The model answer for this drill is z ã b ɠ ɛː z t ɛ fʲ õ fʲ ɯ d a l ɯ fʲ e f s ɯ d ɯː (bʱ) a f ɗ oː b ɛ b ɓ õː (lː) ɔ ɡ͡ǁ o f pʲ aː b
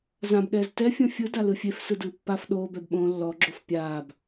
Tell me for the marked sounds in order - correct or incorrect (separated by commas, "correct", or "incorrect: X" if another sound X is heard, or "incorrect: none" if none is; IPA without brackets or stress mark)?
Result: incorrect: pː, correct